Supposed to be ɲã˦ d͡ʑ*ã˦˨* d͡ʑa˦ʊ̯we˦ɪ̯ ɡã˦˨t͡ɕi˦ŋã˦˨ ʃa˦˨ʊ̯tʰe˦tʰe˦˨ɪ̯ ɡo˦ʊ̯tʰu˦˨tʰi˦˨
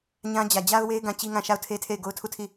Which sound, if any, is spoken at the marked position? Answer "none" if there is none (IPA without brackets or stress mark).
ä˦˨